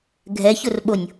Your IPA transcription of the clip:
ɡʱ ɛ ç ʊ r ɓ o nʲ

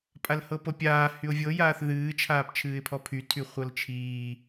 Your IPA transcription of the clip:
pʼ a l h ɤ p ɤ pʲ aː h y ʊ̯ vʲ ɤ j aː θ ð ɨː t͡ʃʰ aː p t͡ʃʰ ɨː ɪ̯ pʰ ɔ pʰ y tʰ y χʷ ɤ l t͡ʃʰ iː

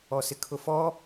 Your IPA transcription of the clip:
ɔ s ɪ kʰ ʊ f ɔ

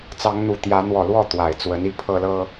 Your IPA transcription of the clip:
t͡s ɑ˨˦ ŋ n̪ u˨˩ t̪ j ä˨˦ n̪ w ɔ˨˩ l w ɔ˥˨ t̪ w a˨˩ ɪ̯ t͡s w ə˨˦ n i˥˨ pʰ ɤ˦ l ɤ˦

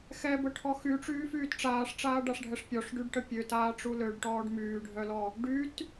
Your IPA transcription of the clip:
x ɛ b ə ʈʰ ɔ x y ʈ͡ʂ yː f yː t ʈ͡ʂ aː ʂ ʈ͡ʂ aː ɖ a ʂ ɖʱ ɛ ʂ pʲ ɔ ʂ ɖ y ɖ ʈ ə pʲ ø t aː ʈ͡ʂ u l ø ɖ ʈ ɔː ɖ m yː ɖʱ œ l ɔ | ɖ y t

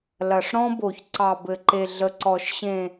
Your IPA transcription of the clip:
l ɐ˨ ʂ ɾ ɔ̃˦ b o˨ ç ǀ ɑ˨ b ɘ˨ ǃ e˨ ɮ ə˨ ǀ ɔ˨ ʃ ɕ ẽ˨

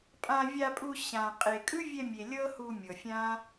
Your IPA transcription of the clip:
pʼ ã˧ vʲ a˧ pʼ u˧ ɕ ã˨ qʼ e˨ kʼ ɯ˦ vʲ ɛ˧ mʲ e˨ lʲ ɤ˦ h u˧ mʲ ɤ˨ fʲ ã˦

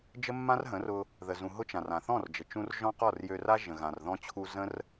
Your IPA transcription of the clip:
d͡ʒ ə˦ mː ã˦ r ɦ ə̃˨˦ r ʊ˧ | ð ə˨ z ũ˨ ɦ ʊ˦ t͡ʃ ã˨ r ã˨ θ ɔ̃˦˨ r d͡ʒ ə˨ t͡ʃ ũ˧ r ʒ ɔ̃˦ q ɔ˦˨ r j ø˧ r a˦ ʒ ə̃˨ ɣ ã˨ r ð ɔ̃˧ t͡ɕʰ u˧ z ə̃˦ r

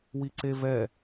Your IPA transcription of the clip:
w i ǀ e v ɛ

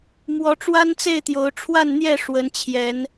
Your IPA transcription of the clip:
m w ɔ˨˦ ʈ͡ʂ w a˦ n t͡s e˥˨ ɪ̯ t̪ j o˨˦ ʊ̯ ʈ͡ʂʰ w a˥˨ n n̪ j ɛ˥˨ ʂ w ə˨˦ n t͡ɕʰ j ɛ˨˦ n

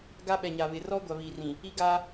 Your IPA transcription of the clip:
ɡ a˦ ɓ ɛ˨ ɲ a˨ β ɪ˨ r ɔ˦ ɡʷ a˨ β i˨ r ĩ˨ | i˦ ɡ a˦

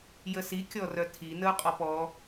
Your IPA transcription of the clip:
j ə s i kʲ ɔ r œ tʰ i n ə ʊ̯ qʼ ɔ p ɔ

